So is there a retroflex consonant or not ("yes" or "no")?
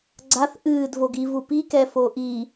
no